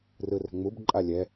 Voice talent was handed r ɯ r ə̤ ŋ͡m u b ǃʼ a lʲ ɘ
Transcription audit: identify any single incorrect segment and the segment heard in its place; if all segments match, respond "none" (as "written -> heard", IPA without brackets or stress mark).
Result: ɘ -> ɛ